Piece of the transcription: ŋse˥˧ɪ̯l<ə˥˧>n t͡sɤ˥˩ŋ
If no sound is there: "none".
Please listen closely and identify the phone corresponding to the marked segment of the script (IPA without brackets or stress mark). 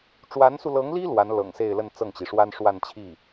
ə˥˧